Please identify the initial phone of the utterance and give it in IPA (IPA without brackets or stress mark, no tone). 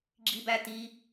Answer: ɡ͡ǁ